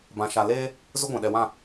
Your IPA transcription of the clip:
b ã˨ ʃ a˨ l eː˦ | z ʊ˦ ɡʷ ã˨ ɗ ɛ˨ w ã˦˨

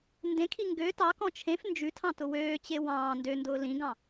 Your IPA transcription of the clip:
n d ẽ kʰ i ŋ ɡ ø t ɑ k ɔ̃ t͡ʃʰ ẽ f n d͡ʒ ʉ tʰ ɑ̃ t ʊ w øː t͡ɕ e w ɑ̃ː n d ø n d ʊː l ĩ ɡ ɑ̃

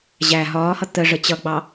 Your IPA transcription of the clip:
ʑ æ ɦ ɒː h ʌ t̪ ə ʐ ə t͡ɕ ʌ ɡ͡b ɑ

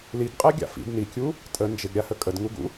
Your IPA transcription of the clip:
l i ɡ qʼ ɛ ɡʲ a̰ f ḭ d n i kʲ u | tʼ ə n d͡ʒ ɪ ɡ ɾʲ a h ə kʼ ə d ŋ u ɡ ṵ

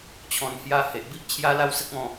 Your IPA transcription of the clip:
t͡ɕʰ ɔ̃˧ n h j a˧ h e˨ ʔ b i˦ ʔ t͡ɕʰ j a˦ l a˦ w s ə˦ k̚ ɔ̃˥˧

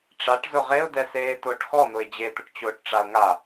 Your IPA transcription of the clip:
ʈ͡ʂ a ʈ z ʊ ʁ e ʊ̯ d ɛ s eː t̪ ʊː ʈ x ɔ n̪ ʊ ɪ̯ d͡ʑ e t̪ ʊ ʈ t͡ɕ ʊː ʈ ʈ͡ʂ a ʊ̯ ŋ a

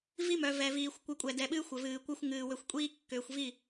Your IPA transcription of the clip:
v i˦ m œ˨ v ɛ˨ v iː˨ xʷ kʷ ɨ˨ kʷʼ ɛ˨ d ɛ˨ ɓ ɨː˦ xʷ ə˨ v ɨː˨ kʷ ə˦ xʷ ŋ ɨː˨ w ʏ˨ xʷ kʷʼ iː˦ kː ʏː˨ xʷ v i˦˨

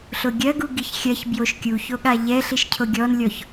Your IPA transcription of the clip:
ɬ o ɡʲ ɐ ɡ u ɡ i ç xʲ ɐ ç b j o ʃ kʲ u ç o ɠ a ʎ ɛ ɬ i ʃ cʰ o ɡʲ ɔ n lʲ ɔ ç

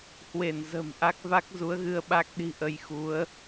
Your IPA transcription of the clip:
h w e˧˩ n z ə̤˨˩ m ʔ a˦˥ k̚ v a˦˥ k̚ z u˨˦ ə̯ ɣ ɨ˧ ə̯ ɓ a˦˥ k̚ ɗ i̤˨˩ ʔ ə˧ j x u˨˦ ə̯

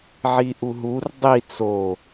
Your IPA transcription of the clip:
ʕ i ʔ u ɦ u r dˤ i t͡s o

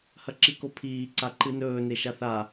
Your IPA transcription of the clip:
h ɐ ǁ i k o pʰ iː ǀ a ǃ ɨ n ɵː n e ʃ a θ a

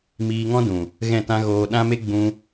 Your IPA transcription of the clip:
m iː˧ ŋ ɔ̃˦ d ũ˨ | ɣ ɛ̃˦˨ t ã˦ ɣ oː˧ ɗ ã˦ m e˦ ɡ͡b ũ˧

